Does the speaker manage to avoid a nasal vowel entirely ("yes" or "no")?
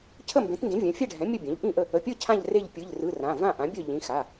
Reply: no